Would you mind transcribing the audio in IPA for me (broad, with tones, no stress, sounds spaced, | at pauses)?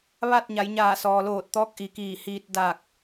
ʋ a˥˨ t̚ ɲ a˩˧ j ɲ aː˧˩ s ɔː˩ l oː˧˩ t̚ t̪ ɔː˧˥ k̚ ʔ i˩˧ k iː˧˩ h iː˧ t̚ d a˧˩ k̚